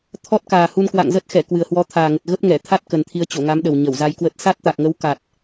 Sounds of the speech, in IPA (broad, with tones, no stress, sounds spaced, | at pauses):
t̪ʰ ɔ˦˥ t̚ k aː˨˩ h u˧ n k w a̰˧˨ ŋ z ə˦˥ t̚ x ɛ˧˩ k w ɨ˨˩ ə̯ h w ɔ˨˦ t̪ʰ aː˨˩ ŋ ə˨˩ t̚ ɣ ə˦˥ p̚ ŋ ɛ˧˩ t̪ʰ a˦˥ t̚ k ə˨˩ n t̪ʰ i˨˦ ə̯ t͡ɕ o˧˩ ŋ a˨˦ m ɗ ə˨˩ w ɲ ə˧˩ w z a˧ j k w ə˦˥ t̚ s a˦˥ t̚ t̪ a˨˩ k̚ ŋ ə˨˦ w k a˨˩ t̚